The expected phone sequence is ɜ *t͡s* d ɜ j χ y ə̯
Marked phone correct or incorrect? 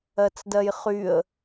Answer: correct